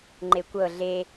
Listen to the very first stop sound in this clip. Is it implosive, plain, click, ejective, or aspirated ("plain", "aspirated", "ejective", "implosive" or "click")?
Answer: click